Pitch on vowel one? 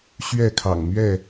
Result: falling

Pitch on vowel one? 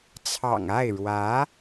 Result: low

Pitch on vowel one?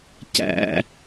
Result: high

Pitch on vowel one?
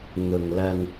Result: low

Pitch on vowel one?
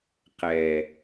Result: low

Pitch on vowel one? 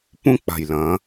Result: high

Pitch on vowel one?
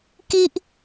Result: high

